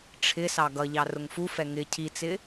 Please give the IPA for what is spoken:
ʈ͡ʂʰ ɪ s ɑ ɡ ʌ ʎ ɑ r ʊ ŋ f u f ɛ ŋ ɪ cʰ i t͡s ɪ

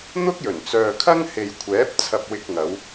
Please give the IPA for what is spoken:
n̪ ʊ˥ k̚ j ɵ˨˩ n t͡s œː˨ kʰ ɐ˥ ŋ h e˨ j kʷʰ ɛː˨˥ p̚ t͡sʰ ɐ˧ p̚ w ɪ˧ k̚ ŋ ɐ˨˧ w

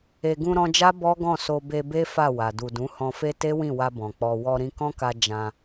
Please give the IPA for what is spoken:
e˨ ɡ ũ˧ ɾ ɔ̃˧ d͡ʒ a˦ b ɔ˦ ɡ ɔ̃˦˨ s o˧ b e˧ b e˦ f a˦˨ w a˨ d u˨ d ũ˨˦ h ɔ̃˧ f e˦ t e˦ w ĩ˦˨ w a˧ b ɔ̃˨ k͡p ɔ˧ w ɔ˧ ɾ ĩ˧ k ɔ̃˦ k a˧ d͡ʒ ã˧

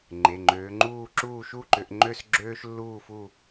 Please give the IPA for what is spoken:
ŋ͡ǃ e˩˧˩ ŋ͡ǃ øː˨˦ ŋ͡ǃ uː˥˧ ǁ uː˥˧ ʃ u˥˧ ǃ ʏ˨˦ ʔ ŋ͡ǃ ø˥˧ s ɡ͡ǁ øː˥ ʃ lː uː˥˧ f u˥˧

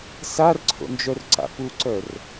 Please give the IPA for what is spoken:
s a r ǀʰ o̰ n d͡ʒ œ r ǀ a̰ p u ǀ œ r

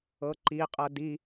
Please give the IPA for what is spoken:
ɤ ǃ i qʼ ɤ d i

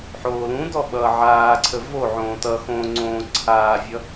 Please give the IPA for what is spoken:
ħ oː l ũ d ɔ ɓ ʌː ʕ aː ǀʰ ə v o ʕ õː t ʌ x õː ŋ͡ǀ õː ǀʰ aː vʲ ʌ

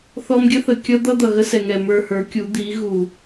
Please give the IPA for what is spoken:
θ ɔ˧ m ɡʲ ə˦ θ ə˨ kʲ ʌ˦ d̪ ʌ˦ d̪ ʌ˨ ɣ ə˦ s ɛ˨ ŋ ɛ˨ m ə˞˧ h ə˞˨˦ kʲ u˨˦ d̪ i˨˦ ɣ u˨

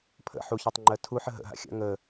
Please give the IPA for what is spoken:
pʰ ə̰ ħ u ç ɜ tˤ ŋ͡ǃ ɜ tʰ u ħ ə ɦ ə̰ ɦ a̰ xʲ a̰ ŋ ə

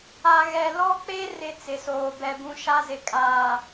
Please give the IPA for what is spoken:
a˨ ɣ ɛ˨ l ɔ˦ k͡p e˦ r ɪ˦ t͡s ɪ˨ s oː˨ b ɛ˦ b ũ˦ ʃ a˦ z ɪ˨ kʼ aː˨

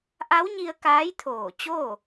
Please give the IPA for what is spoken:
ʔ a˧˥ w ɲ i˧ ə̯ k aː˧˥ j t̪ʰ oː˧˩ t͡ɕ o˥˨

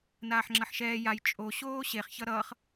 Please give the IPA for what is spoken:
n aː ħ ŋ͡ǁ ʌ ħ ʃ ɛː j a j t͡ʃʼ o ɕ oː ɕ e χ ç ʌ ɾ ʌː χ

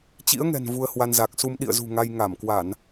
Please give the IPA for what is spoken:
t͡ɕ ḭ˧˥ ə̯ ŋ ɛ̤˨˩ n v u˧ ə̯ h w a˧ n z a˨˩ k̚ s u˧ m ɗ ḭ˧˨ ə̯ z ṳ˨˩ ŋ a˧ j ŋ a˧˩ m k w a˧˩˨ n

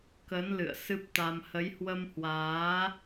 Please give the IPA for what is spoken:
k ə˨˦ n l ɨ̰˧˨ ə̯ s ɨ˦˥ p̚ t̪ a˧ m h ə˨˦ j h w ə˧ m h w aː˨˦

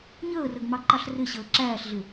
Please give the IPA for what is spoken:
ɲ əː r ə ɡ m ɑ ǃ ɑ ɬ r ɪ ɕ əː ǁ æː ɬ ɮ ɪ

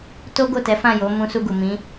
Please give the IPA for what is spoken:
t o˦ ɡ o˦˨ t ɛ˨˦ f ã˦˨ j o˨˦ m ũ˧ s u˧ ɡ u˨ m ĩ˨˦

